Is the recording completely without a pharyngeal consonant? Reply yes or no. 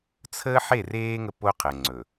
no